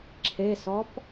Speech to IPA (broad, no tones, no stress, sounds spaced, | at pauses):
ǁʰ e s ɔ p